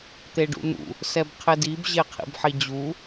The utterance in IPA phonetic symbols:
t̪ e ɖ ṵ n̪ ṵ | s ɛ b qʰ ɪ d i b ʑ e qʰ ḭ b ħ i d͡ʑ u

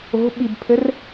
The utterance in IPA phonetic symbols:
o̤ ɓ i b pʰ ɘ r

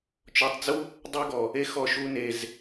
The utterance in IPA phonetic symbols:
t͡ʃ ɔ˧ tˤ d͡z u˦ | dˤ y˦ ɡ ɔ˨ | e˦ x ɔ˧ ʃ u˧ n e˨ z

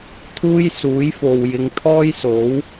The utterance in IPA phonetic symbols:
t̪ʰ uː˥ j s uː˨˥ j f o˨ w j ɪ˨˧ ŋ t̪ʰ ɔː˥ j s o˨˥ w

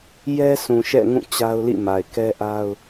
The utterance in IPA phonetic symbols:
j ɛ˦ sʰ ũ˨ ʃ ɛ̰˦˨ ŋ ũ˦˨ t͡ɕ a˦ ʊ̯ l ḭ˦˨ m a˨ ɪ̯ k ɛ˦ ʔ a˦ ʊ̯

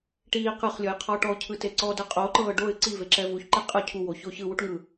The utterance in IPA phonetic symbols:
ʈ iː q ɯ χ lʲ ɔ j qʰ ɔ ʈ ɔ ʊ̯ cʰ ɯ t e ǀ ɔ d ɤ qʼ o ǃ ɤː ɖ o ɪ̯ ǀ i v e ǁ ɛ v u ç ǃ ɛ qʼ ɯ cʰ u w o ç o ç ɯ w u ʈ ŋ ɯ

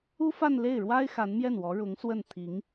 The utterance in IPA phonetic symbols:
u˥ f a˥˧ n l e˥˩ ɪ̯ ɻ w a˥ ɪ̯ x a˧˥ n m j ɛ˥˩ n w ɔ˧˥ ɻ ʊ˧˥ ŋ s w ə˥˩ n t̪ʰ i˧˥ ŋ

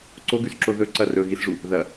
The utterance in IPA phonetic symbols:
ǀ o ɡ ʉ s ǁ o ð ɵ ǀ ɐ r ɵ ɣ i s ʐ u | ð ɐ

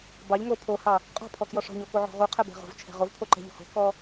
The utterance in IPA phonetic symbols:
b ɑ ʎ ŋ o pʰ o h ɑ | qʼ ɔ̤ pʰ ɔ k j ɔ ʂ ɔ̤ ɲ o k o ʕ ɔ̤ ʁ u qʰ ɛ b ɛ̤ ʁ o̤ v t͡ʃʰ ɛ̤ ʁ o v pʰ o ǃ ɛ̤ ʎ o̤ h o̤ k ɔ

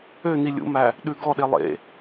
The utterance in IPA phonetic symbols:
ø n i lʲ ṵ m æ | ɗ ʉ ɡ ɔ ɗ e lˠ ḛ

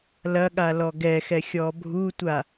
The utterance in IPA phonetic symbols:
l ɐ ɠ a l ɔ ɡ ɛ x ɛ xʲ ɔ bʱ u tʷ a

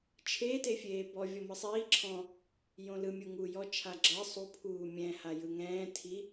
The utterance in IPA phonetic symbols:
t͡ʃʰ e t e fʲ eː b ɔ vʲ ɔ m ɯ sˤ iː ǁʰ ɔ̃ | j õ l ɯ mʲ u ŋ uː j ɔ t͡ʃʰ a ɡ͡ǁ ɤ sˤ u pʰ uː mʲ ɛ̃ h a j ɯ ŋ ɛ̃ː tʰ i

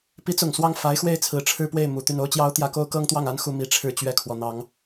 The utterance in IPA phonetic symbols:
p i˧˥ t͡s ʊ˨˩ ŋ s w ɑ˥˩ ŋ f a˧˥ ɪ̯ x w e˥˩ ɪ̯ t͡sʰ ɹ̩˨˩ ʈ͡ʂʰ ɻ̩˥˧ p w e˥˩ ɪ̯ m u˨˩ t̪ y˥˩ n o˥ ʊ̯ t͡ɕ j ɑ˥ ʊ̯ t̪ j ä˥ k o˥ ʊ̯ k ɤ˥ ŋ t̪ w ɑ˥˩ ŋ a˥ n x u˥˧ m i˥˧ ʈ͡ʂʰ ɻ̩˥˧ t͡ɕ ɥ ɛ˥˩ kʰ w ɔ˩ n̪ ɑ˨˩˦ ŋ

